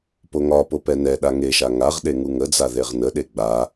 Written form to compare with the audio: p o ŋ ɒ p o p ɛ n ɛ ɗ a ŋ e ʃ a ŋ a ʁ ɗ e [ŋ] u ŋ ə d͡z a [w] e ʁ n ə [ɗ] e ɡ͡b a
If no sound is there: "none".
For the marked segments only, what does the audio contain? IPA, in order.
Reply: ŋ, ð, ɗ

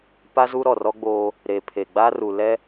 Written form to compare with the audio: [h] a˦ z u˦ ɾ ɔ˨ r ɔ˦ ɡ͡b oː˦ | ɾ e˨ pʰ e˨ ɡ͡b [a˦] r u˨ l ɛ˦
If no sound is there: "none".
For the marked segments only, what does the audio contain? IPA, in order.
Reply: p, a˦

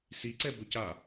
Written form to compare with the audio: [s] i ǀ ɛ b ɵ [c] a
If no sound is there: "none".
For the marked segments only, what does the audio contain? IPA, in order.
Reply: s, c

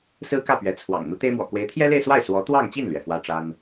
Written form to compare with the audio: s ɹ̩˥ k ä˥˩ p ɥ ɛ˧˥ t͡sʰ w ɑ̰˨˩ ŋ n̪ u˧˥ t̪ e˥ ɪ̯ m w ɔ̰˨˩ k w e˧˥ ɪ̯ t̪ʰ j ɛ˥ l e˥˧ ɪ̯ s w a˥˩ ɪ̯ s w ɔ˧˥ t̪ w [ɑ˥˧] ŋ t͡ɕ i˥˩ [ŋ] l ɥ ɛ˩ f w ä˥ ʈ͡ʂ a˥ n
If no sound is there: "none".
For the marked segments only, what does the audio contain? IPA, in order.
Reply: ɑ˥˧, n

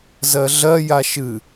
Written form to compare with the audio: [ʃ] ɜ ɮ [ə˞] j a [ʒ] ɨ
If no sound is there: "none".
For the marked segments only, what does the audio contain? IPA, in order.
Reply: z, ɜ, ʃ

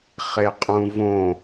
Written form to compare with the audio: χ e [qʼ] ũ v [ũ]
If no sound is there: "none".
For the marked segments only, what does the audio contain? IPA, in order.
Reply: qʼ, õ

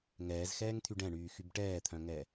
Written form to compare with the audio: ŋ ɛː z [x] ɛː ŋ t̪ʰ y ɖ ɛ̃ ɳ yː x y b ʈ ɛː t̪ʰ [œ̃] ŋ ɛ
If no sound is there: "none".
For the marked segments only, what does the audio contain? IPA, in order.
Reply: x, œ̃

